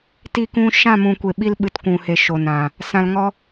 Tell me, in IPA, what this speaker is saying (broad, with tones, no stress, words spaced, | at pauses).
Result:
ti˧kũ˧ ʃã˦˨mũ˨kʷe˨ɓi˧l ɓɨ˨˦tkʷũ˨he˨ ʃo˨nã˨ | sã˧l ŋɔ˦